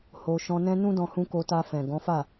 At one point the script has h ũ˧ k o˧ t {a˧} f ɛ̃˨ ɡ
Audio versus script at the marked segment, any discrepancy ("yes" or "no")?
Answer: no